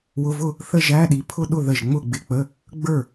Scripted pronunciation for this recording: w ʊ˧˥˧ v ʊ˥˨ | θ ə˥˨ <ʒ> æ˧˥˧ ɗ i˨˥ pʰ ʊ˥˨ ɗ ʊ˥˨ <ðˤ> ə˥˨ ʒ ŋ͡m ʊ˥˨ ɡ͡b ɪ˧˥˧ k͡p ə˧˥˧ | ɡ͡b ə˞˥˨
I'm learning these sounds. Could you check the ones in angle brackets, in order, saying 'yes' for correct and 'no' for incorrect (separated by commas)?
yes, no